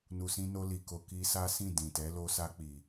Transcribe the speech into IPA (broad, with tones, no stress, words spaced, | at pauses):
nu˨sĩ˧ no˧li˨ko˨ ki˧sa˦sĩ˦˨ dĩ˨tɛ˨˦ lo˧sa˧k͡pi˨